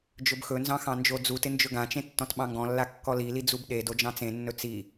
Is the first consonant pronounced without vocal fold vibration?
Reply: no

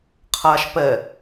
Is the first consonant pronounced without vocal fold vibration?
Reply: yes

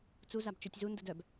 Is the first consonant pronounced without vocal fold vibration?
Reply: yes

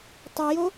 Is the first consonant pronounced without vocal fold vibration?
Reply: yes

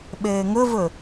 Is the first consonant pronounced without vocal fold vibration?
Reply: no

